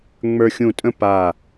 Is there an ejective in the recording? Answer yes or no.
yes